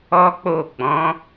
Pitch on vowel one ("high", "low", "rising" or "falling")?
high